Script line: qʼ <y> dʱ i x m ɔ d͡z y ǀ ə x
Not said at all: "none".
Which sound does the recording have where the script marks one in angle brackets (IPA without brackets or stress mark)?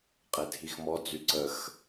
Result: e